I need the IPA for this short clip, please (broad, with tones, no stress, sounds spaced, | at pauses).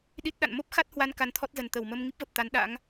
ɗ i˦˥ t̚ ɗ a̰˧˨ n m o˦˥ p̚ x a˦˥ t̚ h w a˧ n k a˧ n t̪ʰ ɔ˦˥ t̚ z ə˨˩ n t̪ ə˧˩ w m ə˧ m ŋ i˦˥ p̚ v ə˨˩ p̚ t̪ a˨˦ n ɗ a̰˧˥ ŋ